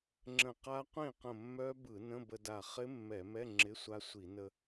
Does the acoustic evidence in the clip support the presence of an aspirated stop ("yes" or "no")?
no